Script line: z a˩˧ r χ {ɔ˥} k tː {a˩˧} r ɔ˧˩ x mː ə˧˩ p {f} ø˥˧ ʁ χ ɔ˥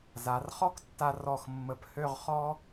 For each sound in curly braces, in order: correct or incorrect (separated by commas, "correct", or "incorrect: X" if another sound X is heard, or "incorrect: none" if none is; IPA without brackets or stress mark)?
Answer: correct, incorrect: a˧, incorrect: h